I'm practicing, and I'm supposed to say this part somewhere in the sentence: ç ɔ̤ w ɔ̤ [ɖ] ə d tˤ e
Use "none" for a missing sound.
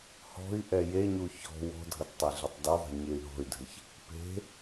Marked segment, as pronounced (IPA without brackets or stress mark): dʱ